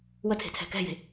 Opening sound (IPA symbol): w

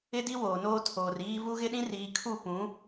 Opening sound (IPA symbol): ɪ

